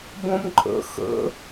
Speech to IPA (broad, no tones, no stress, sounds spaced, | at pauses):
b õ m ǃʼ ə̰ x ə̰